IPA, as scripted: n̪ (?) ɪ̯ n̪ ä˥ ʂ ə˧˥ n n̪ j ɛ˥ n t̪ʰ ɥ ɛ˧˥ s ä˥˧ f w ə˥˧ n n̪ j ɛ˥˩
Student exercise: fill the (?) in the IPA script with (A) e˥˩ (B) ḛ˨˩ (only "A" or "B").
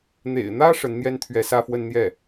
B